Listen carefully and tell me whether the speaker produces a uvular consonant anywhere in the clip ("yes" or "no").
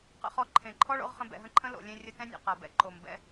yes